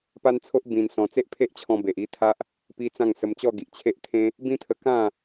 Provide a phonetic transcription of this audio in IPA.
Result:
p a˦ n t͡sʰ o˦ ʔ b ĩ˧ n s ɔ̃˧ t͡s e˦ ʔ pʰ e˦ ʔ t͡ɕʰ ɔ̃˧ b e˨ ʔ i˥˧ t̪ʰ a˦ ʔ | p i˦ t͡s ã˥˧ ŋ s ə˧ m t͡ɕ ɔ˥˧ ɡ i˨ ʔ t͡ɕʰ e˦ ʔ t̪ʰ ẽ˦ | b ĩ˦ t̪ʰ ə˧ k ã˥˧

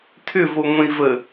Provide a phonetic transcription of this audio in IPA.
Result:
tʰ ʏ v o ŋʷ ẽ i̯ v ə

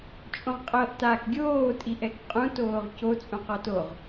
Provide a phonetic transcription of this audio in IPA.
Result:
t͡ʃʼ õ ʁ qʼ ɤ ʔ t a k ɡʲ oː tʼ i ʔ ɛ k qʼ ũ t oː ʁ c o t͡sʼ ũ q ɔ t o ʁ

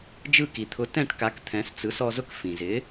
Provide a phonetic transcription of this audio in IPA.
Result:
d͡ʒ ɯ˥˩ k i˩ t̪ʰ ʊ˩˥ t ɛ̃˥˩ ʈ k a˩˥ k t̪ʰ ɛ̃˩˥ s t͡s ɯ˩˥ s ɔ˧ z ʊ˥ k f ĩ˩ z ɪ˩˥

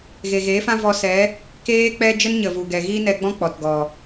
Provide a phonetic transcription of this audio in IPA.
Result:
ɣ e˨ ɣ eː˨˦ f ã˦ v ɔ˧ s ɛ˨˦ | k eː˦ k͡p ɛ˦ d͡ʒ ə˦ n ɲ ə˨ v u˨ ɡ ɛ˨ ɣ iː˦ n ɛ˧ ɡ͡b ɔ̃˦ k͡p ɔ˨ t ɡ ɔ˨

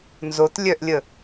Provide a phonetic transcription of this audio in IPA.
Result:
n z o t lʲ œ ʔ lʲ ə

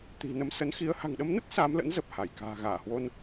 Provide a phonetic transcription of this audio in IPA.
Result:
t̪ i̤˨˩ n ə˨˦ m s ə˨˦ n x i˨˦ ə̯ h a̤˨˩ ŋ ɗ ə˨˦ m n ə˦˥ t̚ s aː˨˦ m l ə̰˧˥ n z ə˨˩ p̚ h a˧˩ j k a̤ː˨˩ ɣ aː˧˩ h w o˧ n

